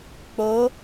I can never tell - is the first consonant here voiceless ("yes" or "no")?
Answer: yes